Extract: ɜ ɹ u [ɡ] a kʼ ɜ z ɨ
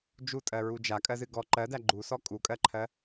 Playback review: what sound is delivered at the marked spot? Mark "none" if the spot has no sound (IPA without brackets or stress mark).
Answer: d͡ʒ